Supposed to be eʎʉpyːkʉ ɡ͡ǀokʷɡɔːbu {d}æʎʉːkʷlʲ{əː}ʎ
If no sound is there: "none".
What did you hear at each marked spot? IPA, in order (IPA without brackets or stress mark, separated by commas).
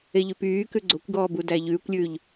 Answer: d, ʉː